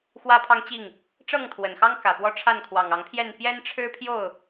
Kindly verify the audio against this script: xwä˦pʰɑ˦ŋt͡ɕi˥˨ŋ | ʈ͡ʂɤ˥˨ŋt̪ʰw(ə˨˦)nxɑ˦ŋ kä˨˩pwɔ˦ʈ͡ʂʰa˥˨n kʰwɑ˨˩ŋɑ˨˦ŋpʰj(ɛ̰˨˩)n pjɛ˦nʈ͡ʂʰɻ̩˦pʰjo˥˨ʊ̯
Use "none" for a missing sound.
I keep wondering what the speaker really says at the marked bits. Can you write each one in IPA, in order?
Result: ə˨˩, ɛ˥˨

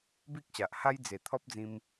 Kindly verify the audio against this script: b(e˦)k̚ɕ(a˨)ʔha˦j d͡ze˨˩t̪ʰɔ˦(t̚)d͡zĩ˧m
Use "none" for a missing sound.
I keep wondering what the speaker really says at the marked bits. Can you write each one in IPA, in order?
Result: i˦, a˨, p̚

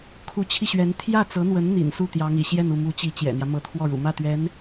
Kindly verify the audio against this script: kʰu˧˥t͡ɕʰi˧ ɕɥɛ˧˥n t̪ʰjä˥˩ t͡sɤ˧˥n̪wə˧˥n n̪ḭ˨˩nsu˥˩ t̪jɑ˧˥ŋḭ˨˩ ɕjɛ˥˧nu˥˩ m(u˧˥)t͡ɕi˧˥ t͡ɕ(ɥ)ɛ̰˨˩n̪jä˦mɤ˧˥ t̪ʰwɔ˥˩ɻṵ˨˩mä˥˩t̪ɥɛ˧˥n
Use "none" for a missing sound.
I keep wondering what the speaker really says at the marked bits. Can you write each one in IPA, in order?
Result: u˧˥, j

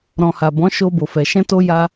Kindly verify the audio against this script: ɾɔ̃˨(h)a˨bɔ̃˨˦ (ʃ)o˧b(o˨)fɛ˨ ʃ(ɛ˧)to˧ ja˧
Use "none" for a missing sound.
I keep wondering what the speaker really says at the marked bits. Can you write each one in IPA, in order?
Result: h, ʃ, o˨, ɛ̃˧

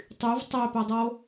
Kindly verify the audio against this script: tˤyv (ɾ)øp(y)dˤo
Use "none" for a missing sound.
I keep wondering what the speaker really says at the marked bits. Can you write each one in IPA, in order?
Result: tˤ, ø

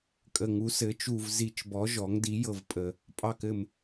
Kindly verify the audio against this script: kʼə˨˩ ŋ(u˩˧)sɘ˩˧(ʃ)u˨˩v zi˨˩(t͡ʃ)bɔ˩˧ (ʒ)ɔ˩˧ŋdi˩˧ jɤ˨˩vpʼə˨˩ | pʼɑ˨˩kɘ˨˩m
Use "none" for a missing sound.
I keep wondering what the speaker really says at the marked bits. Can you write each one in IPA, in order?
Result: u˩˧, t͡ʃ, t͡ʃ, ʒ

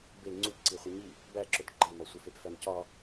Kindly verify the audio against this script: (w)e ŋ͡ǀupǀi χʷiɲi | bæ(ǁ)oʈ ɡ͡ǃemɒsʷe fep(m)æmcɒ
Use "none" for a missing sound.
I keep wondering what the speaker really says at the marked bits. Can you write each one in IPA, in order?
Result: b, ǁ, f

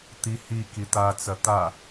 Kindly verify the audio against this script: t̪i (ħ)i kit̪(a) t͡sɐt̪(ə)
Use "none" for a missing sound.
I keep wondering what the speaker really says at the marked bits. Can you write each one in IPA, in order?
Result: h, a, a

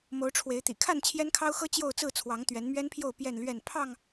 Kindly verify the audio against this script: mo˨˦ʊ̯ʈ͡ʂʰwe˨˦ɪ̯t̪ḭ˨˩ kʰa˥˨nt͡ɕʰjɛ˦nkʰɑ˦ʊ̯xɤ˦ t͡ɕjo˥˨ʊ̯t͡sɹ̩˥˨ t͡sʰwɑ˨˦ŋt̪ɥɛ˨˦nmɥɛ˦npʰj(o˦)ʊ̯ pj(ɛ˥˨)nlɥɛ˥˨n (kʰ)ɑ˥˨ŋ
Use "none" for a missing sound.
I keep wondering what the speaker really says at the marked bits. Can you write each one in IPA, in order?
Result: o˥˨, ɛ˥˨, pʰ

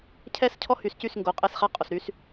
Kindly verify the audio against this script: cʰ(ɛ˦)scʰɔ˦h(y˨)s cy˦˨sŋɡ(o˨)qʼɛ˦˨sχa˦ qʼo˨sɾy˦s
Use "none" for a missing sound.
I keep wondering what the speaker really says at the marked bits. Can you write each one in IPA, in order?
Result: ɛ˦, y˨, o˨

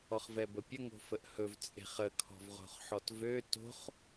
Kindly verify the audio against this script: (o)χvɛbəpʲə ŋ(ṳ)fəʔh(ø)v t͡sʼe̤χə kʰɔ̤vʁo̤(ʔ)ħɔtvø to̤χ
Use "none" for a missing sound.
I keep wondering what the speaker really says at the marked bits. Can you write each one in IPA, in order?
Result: ɔ, o̤, ɵ, χ

